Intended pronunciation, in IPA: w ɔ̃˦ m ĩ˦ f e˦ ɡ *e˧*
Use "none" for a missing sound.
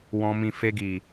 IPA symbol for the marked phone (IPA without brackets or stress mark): i˧